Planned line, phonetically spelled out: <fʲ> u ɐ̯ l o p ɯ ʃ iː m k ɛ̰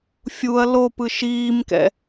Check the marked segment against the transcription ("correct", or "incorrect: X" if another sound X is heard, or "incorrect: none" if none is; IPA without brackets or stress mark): correct